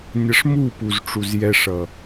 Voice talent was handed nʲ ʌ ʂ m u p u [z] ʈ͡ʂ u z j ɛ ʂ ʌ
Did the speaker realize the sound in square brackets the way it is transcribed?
yes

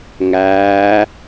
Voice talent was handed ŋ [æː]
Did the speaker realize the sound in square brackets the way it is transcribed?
yes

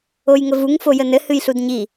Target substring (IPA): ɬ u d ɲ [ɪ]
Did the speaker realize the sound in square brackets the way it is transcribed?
no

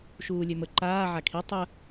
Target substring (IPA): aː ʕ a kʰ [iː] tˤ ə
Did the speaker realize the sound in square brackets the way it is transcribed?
no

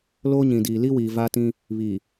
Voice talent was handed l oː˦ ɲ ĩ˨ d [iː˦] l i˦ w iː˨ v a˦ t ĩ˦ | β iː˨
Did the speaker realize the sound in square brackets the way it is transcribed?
no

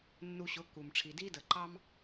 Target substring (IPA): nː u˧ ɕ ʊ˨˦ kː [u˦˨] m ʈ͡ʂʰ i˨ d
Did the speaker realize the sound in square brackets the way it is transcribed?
no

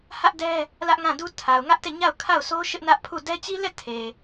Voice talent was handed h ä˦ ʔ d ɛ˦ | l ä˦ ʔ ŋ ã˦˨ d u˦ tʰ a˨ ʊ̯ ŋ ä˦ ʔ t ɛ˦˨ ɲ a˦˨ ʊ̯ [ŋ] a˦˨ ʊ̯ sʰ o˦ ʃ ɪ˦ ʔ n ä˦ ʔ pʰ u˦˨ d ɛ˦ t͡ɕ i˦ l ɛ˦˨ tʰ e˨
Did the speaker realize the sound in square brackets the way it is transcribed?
no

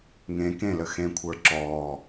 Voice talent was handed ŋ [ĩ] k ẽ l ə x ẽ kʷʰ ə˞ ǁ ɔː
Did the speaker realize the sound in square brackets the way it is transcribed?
no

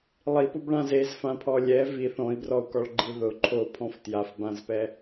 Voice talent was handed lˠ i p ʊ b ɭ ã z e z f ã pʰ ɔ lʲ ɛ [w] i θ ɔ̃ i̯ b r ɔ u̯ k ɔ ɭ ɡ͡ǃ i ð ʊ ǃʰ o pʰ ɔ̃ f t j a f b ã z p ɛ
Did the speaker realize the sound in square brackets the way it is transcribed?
no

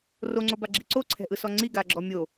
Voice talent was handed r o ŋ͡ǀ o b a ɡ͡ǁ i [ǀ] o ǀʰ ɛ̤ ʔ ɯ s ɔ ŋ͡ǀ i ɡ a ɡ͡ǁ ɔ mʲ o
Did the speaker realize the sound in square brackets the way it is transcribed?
yes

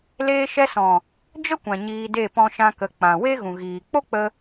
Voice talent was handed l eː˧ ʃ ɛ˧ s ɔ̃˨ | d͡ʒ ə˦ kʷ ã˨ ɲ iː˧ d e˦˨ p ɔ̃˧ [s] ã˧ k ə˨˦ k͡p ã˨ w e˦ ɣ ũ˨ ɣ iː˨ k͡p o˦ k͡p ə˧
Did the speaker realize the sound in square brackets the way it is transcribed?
no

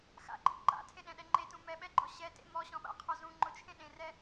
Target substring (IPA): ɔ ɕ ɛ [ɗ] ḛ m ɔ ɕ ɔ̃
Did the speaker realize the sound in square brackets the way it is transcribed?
no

